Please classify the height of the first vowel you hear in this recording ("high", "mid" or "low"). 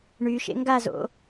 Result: high